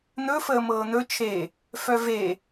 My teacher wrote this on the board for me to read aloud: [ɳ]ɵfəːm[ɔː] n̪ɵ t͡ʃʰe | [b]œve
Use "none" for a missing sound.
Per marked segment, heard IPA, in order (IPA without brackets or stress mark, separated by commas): n̪, ɤː, f